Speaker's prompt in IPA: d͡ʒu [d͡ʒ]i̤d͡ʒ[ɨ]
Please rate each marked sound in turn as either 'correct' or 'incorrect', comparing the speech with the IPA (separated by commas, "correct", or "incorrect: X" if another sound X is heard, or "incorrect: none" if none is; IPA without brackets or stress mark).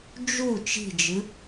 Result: incorrect: t͡ʃ, correct